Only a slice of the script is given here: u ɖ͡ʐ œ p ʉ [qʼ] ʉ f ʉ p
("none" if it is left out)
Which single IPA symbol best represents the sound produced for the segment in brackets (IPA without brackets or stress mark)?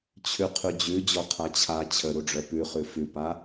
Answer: χ